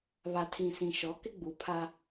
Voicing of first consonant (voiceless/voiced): voiced